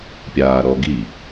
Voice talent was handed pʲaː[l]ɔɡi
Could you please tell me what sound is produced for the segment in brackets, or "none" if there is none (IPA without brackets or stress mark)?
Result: ɾ